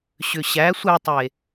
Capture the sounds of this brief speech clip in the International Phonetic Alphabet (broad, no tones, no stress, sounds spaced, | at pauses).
ɕ ʏ ɕ æ sʷ ɛ tˤ e